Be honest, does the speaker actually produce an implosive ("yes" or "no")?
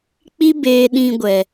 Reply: yes